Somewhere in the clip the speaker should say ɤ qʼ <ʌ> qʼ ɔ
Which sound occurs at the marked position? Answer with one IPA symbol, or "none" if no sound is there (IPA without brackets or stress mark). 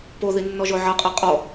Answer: a